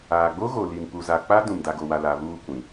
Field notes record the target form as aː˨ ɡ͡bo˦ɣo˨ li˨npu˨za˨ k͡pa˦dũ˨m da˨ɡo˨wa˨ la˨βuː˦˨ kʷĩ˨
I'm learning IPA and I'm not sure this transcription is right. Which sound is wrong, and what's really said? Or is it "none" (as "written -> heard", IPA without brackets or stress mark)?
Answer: none